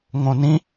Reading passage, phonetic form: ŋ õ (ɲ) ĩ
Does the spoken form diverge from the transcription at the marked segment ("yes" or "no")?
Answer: yes